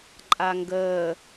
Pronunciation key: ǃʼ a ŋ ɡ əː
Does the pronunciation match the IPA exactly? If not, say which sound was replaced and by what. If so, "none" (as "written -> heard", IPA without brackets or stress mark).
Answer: none